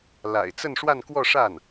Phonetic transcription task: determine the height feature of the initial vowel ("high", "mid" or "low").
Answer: low